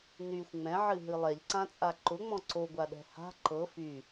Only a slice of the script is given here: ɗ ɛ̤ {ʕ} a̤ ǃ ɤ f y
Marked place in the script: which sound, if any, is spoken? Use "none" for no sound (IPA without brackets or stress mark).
h